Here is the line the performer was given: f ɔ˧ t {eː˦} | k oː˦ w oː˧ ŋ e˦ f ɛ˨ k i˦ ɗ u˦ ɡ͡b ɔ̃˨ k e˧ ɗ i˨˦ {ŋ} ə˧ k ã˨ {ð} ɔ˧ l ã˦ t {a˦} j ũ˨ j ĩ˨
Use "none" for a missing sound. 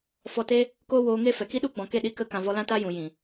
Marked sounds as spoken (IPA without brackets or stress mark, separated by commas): eː˦, k, v, a˦